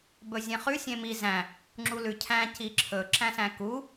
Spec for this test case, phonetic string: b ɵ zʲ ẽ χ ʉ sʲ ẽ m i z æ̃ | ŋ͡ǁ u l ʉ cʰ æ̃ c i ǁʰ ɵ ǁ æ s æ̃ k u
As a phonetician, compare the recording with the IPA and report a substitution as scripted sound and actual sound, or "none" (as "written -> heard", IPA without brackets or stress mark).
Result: æ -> æ̃